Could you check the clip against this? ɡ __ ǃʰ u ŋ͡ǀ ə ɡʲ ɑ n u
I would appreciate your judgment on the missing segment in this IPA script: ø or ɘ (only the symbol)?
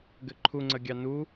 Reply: ɘ